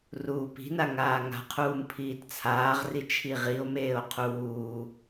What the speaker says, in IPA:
ruːpi̤na ŋaːŋa̤qʰuːm pʰiːtt͡sʰaːʁri t͡ʃʰiʁio̯meːo̯ qʰuː

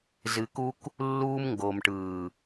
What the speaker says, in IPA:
zɨ˧ku˦k | lːuː˧mŋɡo˨mʈɯː˨

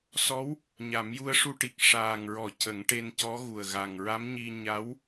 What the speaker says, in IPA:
sɔ˧˥w | ɲa˨˩˦mju˧ə̯ʂu˧ʈi˨˩k̚ ʂaː˨˩ŋɹɔ˨˩˨ cə˨˩˦ŋʈe˧ncɔ˧˥ɣu˨˩ə̯ ɣa˨˩ŋɹa˧˥mɲi˧ ɲa˧˥w

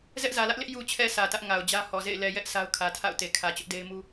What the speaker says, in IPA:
zɛ˦ʔzä˨lä˦ʔlɪ˦ʔ ju˨t͡ɕʰɛ˨ sä˨tä˦ʔ ŋa˨ʊ̯d͡ʑä˦hɔ˨zḛ˦˨ɪ̯ lɛ˨jɛ˦ʔ sa˦ʊ̯kʰä˨ tʰa̰˦˨ʊ̯te˨ kʰä˨t͡ɕʊ˦ʔde˦ɪ̯ mu˦

